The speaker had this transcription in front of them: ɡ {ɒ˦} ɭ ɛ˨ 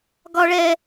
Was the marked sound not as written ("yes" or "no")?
yes